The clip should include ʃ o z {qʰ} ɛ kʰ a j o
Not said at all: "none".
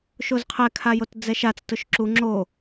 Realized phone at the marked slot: qʰ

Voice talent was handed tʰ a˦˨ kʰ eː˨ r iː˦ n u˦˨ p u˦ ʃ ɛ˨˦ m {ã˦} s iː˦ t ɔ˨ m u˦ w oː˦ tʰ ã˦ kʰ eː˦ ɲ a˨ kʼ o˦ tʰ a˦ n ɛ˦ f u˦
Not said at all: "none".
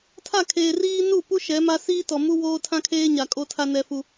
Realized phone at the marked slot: a˦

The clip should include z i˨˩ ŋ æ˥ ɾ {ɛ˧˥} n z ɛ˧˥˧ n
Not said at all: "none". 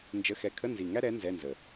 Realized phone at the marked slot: ɛ˧˥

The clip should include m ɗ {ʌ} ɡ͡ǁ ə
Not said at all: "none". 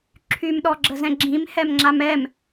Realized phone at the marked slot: ɔ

